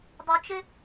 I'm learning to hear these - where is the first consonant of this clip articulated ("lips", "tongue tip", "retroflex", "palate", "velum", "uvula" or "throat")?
tongue tip